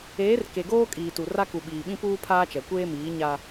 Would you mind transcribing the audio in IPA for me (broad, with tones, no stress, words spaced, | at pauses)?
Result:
eː˨˦rke˨ɡoː˦ kʼiː˨tu˨ ra˦ ku˨ɓiː˨ɓĩ˦ puː˦pʰaː˦t͡ʃɛ˨ kʷeː˦miː˨˦ ɲa˦